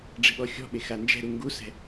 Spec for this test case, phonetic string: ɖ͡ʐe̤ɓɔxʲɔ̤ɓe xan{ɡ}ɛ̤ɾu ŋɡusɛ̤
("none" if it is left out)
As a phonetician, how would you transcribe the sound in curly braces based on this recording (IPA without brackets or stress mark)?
d͡ʒ